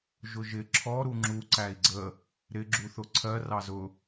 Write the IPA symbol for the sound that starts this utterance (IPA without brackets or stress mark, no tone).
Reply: ʒ